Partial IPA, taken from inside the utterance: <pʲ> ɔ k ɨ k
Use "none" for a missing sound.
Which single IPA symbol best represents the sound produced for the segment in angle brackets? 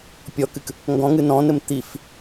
pʲ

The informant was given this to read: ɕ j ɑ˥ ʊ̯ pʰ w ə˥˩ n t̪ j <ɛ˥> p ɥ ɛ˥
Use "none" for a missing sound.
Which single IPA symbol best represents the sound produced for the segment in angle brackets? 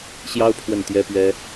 ɛ˥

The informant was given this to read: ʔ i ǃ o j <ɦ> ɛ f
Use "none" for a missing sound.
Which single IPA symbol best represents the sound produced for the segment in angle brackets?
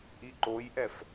ʔ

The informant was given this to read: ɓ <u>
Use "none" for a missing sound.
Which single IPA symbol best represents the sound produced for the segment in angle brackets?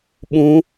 ũ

